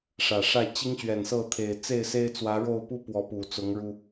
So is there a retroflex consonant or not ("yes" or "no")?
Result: yes